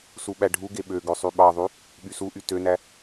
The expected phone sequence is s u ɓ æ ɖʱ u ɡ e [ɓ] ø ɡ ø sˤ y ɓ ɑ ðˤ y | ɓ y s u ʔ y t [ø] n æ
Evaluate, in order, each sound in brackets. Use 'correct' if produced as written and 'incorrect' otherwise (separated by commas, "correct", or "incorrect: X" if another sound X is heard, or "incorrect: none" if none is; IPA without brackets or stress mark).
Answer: correct, correct